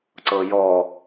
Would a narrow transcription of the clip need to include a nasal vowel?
no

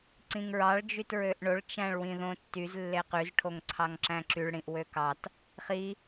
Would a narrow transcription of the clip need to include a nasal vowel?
yes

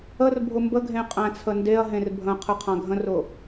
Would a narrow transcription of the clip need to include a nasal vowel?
yes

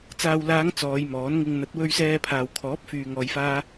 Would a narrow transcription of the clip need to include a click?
no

